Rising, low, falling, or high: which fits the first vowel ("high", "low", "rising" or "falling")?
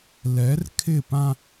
rising